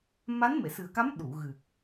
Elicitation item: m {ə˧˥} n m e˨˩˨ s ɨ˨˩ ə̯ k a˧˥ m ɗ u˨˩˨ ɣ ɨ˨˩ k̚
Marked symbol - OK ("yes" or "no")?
no